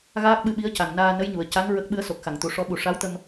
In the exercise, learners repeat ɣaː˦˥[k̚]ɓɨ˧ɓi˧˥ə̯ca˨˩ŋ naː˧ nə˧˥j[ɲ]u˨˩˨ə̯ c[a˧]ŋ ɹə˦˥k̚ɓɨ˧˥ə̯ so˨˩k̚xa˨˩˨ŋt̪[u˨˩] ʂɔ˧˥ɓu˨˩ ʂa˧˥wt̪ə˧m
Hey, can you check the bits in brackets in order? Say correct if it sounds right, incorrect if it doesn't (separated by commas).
correct, correct, incorrect, incorrect